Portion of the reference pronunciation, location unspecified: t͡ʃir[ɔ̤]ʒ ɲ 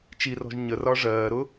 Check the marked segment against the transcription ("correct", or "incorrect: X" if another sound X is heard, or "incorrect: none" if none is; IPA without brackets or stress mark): correct